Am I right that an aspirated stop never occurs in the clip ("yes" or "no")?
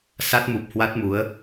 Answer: yes